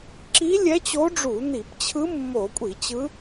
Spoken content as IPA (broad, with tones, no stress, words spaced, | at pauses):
ǁi˧˥lʲɛ˧˥t͡ɕo˧˥ɖ͡ʐu˧˩˧ ni˧˩˧pt͡ɕʰɯ˧˥ mːo˧˩˧kʷʼi˧˩˧t͡ɕɯ˧˥